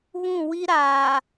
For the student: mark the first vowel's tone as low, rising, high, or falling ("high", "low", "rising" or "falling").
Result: falling